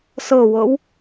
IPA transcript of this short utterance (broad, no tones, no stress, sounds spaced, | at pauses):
s ɤ w ɤ w